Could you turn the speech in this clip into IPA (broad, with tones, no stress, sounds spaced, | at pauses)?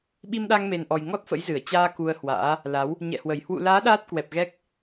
ɓ i˧ m ɗ a˧ ŋ m e˨˩ n ʔ ɔ˨˩ j ŋ ɔ˦˥ t̚ f ə̰˧˥ j z ɨ˧˩ ə̯ t͡ɕ aː˧ k u˧ ə̯ h w a̰ː˧˥ | l a˨˦ w | ɲ ɛ̰˧˨ h w ə˧˩ j h w ṵ˧˨ l aː˨˦ ɗ aː˦˥ t̚ k w ɛ˨˩ p̚ ɣ ɛ˦˥ k̚